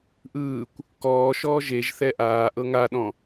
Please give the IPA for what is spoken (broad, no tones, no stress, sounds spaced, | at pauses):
ʔ ɯː kʷ | k ɔː ʃ ɔː ʒ e ʒ θ ɛ ʔ aː ʔ ɤ ŋ a ɗ ɔ̃